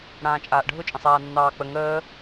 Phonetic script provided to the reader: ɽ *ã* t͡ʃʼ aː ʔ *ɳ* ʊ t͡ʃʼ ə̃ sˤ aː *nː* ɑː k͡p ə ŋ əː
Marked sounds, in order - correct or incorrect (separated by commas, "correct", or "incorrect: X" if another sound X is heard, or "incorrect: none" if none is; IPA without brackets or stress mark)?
incorrect: ãː, incorrect: ɖʱ, correct